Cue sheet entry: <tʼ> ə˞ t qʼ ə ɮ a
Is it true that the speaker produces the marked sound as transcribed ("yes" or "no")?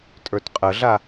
yes